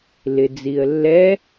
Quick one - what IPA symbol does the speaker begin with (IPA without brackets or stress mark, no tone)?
l